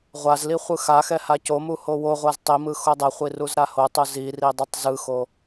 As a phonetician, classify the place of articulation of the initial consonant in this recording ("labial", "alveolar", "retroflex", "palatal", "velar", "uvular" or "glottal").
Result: uvular